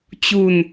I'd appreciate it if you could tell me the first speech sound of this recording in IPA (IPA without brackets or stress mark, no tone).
t͡ɕ